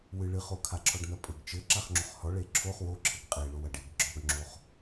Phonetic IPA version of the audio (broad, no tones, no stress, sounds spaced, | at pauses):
w ɨ ɭ ɨ χ o kʰ a ǁʰ ɔ ɖ n ɐ pʼ ɘ ɡ t͡ʃ ɘ ǁ a χ ŋ͡ǁ o χ h ɔ ɭ e ǁʰ o χ w o ǁʰ ɘ ɡ qʼ e ɭ o w ɐ ɖ e ɡ ɡ͡ǁ ɔ ɡ ŋ͡ǁ o χ